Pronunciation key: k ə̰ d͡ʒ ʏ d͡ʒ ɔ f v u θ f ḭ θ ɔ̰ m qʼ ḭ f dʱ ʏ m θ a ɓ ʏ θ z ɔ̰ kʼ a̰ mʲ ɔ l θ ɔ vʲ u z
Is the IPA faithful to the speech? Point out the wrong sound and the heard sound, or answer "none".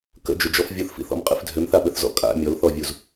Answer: v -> vʲ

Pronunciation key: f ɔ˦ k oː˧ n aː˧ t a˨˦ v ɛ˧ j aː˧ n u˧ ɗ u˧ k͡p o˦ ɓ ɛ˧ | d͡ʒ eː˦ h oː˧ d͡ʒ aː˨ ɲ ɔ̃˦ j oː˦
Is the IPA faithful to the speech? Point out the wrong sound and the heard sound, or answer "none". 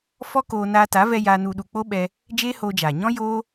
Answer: none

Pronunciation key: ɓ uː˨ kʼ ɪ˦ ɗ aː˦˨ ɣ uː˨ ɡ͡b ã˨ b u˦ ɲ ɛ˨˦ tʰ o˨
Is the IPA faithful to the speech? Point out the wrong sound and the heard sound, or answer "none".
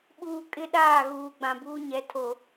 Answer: u˦ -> uː˦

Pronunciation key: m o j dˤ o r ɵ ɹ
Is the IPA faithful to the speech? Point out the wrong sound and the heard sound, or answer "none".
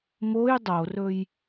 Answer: ɹ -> j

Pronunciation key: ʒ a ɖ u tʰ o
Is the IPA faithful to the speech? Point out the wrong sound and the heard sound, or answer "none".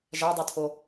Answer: ɖ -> dˤ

